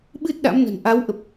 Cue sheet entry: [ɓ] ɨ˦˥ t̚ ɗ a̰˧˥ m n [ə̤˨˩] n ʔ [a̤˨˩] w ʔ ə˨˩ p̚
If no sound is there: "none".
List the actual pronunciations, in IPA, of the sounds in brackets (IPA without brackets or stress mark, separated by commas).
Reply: ɓ, ə̤˨˩, a˨˦